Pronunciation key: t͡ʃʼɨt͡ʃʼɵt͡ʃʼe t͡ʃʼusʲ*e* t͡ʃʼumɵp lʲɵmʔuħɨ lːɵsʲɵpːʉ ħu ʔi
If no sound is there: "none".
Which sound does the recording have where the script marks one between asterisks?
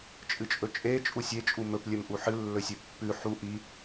e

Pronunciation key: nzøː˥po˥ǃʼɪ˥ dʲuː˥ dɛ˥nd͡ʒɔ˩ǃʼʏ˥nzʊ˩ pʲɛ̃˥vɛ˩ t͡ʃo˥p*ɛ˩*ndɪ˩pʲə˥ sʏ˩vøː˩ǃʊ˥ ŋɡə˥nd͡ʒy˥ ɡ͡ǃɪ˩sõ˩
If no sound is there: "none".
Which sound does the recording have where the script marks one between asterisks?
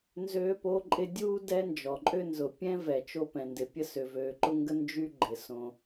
ɛ̃˩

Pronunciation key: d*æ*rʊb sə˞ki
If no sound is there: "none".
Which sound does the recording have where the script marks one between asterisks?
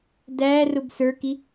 æ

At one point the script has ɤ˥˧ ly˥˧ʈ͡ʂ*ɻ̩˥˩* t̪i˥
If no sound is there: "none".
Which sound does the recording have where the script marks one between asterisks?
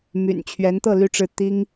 ɻ̩˥˩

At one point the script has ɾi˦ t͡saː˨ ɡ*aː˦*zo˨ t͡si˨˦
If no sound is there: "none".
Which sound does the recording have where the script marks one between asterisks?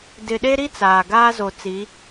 aː˦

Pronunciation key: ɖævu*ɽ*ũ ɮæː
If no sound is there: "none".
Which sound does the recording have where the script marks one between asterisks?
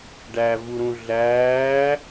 ɾ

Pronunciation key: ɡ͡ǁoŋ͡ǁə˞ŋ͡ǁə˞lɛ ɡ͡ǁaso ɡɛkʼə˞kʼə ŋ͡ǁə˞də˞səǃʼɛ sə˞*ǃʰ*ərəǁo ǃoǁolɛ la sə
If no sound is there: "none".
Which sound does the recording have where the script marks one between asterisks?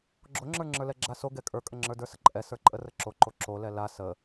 ǃʼ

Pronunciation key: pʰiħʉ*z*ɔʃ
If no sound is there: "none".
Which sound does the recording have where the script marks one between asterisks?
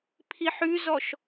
z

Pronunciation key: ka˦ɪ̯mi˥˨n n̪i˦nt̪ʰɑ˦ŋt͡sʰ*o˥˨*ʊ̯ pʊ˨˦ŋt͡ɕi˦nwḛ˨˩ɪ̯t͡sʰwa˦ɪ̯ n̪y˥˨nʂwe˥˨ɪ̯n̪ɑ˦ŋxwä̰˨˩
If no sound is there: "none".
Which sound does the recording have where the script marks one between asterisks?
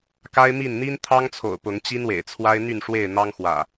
o̰˨˩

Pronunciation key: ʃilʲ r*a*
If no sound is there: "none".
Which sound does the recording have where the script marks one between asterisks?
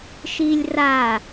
a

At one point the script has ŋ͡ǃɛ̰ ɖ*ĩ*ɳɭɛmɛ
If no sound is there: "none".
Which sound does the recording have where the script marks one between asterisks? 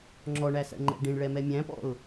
ĩ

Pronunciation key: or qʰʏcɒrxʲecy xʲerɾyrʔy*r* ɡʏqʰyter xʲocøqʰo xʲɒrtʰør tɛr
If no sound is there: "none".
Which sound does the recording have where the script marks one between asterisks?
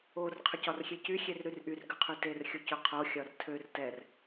r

